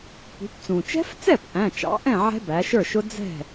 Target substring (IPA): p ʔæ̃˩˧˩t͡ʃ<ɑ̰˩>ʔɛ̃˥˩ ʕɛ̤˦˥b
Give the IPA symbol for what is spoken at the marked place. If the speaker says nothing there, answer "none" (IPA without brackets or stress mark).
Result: ɑ̰˩˧